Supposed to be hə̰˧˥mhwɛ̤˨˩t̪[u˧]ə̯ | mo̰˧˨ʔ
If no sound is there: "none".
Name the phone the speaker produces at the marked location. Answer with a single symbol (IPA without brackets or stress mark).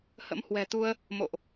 u˧